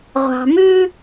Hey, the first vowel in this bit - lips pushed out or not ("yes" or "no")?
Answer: no